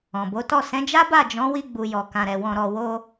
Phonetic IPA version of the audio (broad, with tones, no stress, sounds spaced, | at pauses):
ɔ̃˨ b o˨˦ t ɔ˦˨ s ɛ̃˨˦ d͡ʒ a˦ b a˦˨ d͡ʒ ɔ̃˨˦ w i˧ ɡ͡b u˨ j ɔ˨ k ã˨ ɾ ɛ˨ w ɔ̃˨ ɾ ɔ˨ w o˧